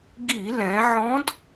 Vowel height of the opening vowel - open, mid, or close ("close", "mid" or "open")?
close